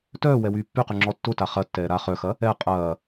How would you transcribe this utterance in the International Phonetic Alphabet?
tœː wɛwyːpːyqy ŋ͡ǁɔtːʊta χɐtːɛː ɾa χœxɐ | ɛ qʼɐː

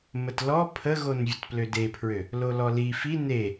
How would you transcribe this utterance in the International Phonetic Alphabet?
mətlɔ pʰəɣon vʲətplødepʰɹø | lolɔli fi ne

